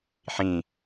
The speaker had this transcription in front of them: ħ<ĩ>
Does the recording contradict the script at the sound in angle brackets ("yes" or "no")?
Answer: no